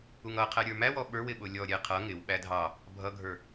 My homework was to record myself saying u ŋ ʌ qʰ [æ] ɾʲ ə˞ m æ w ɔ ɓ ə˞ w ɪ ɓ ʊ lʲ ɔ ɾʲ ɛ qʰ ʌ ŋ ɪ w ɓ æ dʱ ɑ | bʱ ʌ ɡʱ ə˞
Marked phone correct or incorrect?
correct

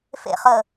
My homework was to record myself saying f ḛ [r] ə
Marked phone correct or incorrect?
incorrect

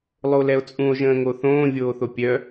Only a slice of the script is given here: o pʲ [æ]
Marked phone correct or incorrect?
incorrect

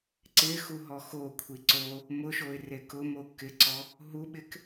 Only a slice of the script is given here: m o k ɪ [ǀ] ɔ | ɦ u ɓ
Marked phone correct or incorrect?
correct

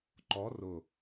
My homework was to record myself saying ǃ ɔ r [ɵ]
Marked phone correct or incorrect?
incorrect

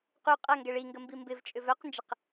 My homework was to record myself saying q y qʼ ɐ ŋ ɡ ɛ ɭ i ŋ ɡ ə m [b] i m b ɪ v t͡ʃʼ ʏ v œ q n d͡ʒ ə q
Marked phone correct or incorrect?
correct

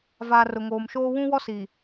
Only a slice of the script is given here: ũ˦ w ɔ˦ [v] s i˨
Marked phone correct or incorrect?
incorrect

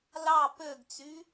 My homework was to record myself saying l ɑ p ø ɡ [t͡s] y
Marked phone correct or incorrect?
correct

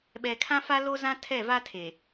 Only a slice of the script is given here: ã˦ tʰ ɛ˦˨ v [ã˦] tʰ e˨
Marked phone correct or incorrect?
incorrect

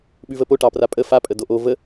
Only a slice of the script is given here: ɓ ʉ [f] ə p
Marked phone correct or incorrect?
incorrect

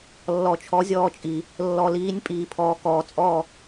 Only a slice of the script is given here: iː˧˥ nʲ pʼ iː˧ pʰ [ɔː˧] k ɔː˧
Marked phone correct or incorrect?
correct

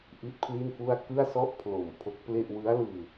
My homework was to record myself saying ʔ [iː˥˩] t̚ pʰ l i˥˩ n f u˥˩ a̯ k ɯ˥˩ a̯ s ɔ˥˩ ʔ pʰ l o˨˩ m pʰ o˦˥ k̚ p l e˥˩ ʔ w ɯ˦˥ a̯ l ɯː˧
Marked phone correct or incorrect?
incorrect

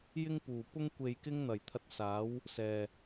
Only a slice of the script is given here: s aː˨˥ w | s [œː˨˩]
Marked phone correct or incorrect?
incorrect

